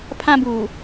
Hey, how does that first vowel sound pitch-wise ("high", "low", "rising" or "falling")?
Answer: high